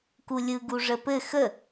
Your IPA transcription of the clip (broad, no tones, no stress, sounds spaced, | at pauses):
k u lʲ ɯ ɡ u ʐ ə p ɘ x ə